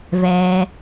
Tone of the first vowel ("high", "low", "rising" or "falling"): low